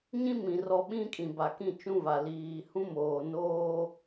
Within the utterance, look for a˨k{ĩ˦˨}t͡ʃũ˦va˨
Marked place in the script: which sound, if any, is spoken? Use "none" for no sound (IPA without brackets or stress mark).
ĩ˦˨